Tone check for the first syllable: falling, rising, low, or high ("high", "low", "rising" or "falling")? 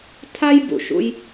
high